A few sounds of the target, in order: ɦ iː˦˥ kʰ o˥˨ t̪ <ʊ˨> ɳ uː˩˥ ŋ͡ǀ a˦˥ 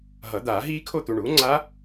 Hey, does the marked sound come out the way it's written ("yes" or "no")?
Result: no